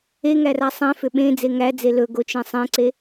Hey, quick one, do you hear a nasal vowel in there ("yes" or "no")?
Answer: yes